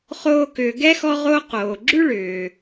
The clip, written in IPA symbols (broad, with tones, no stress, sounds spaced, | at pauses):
χ oː˦ k ʏː˨ ɡ ɛ˥ x ɔ˦ ʁ o˦ q oː˩ ɡ͡ǁ ʉ˥ ɭ ʏː˩